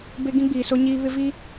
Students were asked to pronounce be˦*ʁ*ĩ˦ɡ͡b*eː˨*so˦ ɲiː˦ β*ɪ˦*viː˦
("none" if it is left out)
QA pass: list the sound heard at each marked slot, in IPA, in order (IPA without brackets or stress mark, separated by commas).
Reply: ɡ, iː˨, ɪ˦